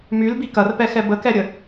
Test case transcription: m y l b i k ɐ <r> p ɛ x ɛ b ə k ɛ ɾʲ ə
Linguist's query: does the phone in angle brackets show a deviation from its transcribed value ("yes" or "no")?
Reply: no